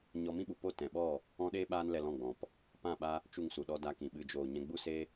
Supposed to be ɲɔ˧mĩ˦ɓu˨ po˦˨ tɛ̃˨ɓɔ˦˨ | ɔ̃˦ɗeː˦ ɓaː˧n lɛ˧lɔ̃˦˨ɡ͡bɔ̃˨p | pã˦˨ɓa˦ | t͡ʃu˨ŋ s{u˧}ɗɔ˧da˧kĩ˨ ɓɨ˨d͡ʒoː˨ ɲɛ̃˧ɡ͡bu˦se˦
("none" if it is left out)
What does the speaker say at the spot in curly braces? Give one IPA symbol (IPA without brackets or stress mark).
u˨